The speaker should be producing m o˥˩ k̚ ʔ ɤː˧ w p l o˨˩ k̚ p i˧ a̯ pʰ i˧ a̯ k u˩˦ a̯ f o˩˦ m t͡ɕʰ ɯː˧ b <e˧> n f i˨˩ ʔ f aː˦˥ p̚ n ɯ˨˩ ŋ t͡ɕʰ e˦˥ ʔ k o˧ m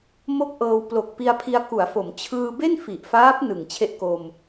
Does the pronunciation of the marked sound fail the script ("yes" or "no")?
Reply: yes